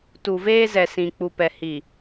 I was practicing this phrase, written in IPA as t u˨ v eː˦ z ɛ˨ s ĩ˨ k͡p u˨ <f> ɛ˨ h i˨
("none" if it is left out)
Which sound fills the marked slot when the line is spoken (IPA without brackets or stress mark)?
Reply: p